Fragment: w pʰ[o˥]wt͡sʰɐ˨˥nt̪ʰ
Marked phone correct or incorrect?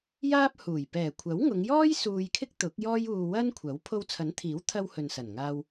incorrect